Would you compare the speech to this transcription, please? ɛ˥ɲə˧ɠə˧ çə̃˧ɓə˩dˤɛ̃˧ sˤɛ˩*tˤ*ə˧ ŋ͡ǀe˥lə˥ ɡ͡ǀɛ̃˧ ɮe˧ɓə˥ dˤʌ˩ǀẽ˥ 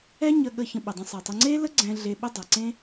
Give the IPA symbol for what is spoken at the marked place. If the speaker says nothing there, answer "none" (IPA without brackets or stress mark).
tˤ